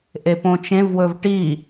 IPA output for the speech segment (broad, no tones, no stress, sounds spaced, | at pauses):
ʔ e p õ t͡ʃ ẽ v w ɵ v ʈ i